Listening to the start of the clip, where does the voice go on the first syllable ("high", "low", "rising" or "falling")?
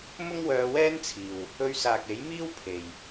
high